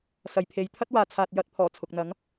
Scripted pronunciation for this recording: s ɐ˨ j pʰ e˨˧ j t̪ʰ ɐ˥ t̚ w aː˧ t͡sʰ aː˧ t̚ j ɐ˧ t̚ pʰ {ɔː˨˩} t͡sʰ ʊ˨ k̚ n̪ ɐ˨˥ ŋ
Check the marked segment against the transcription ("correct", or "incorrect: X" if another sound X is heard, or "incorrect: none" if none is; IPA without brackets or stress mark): correct